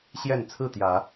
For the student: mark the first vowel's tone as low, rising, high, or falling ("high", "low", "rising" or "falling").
falling